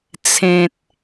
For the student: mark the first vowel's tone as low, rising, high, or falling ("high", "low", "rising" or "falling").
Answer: low